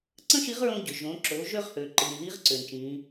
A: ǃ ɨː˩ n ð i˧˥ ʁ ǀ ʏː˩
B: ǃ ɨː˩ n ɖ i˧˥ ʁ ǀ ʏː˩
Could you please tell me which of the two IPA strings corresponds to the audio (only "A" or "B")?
A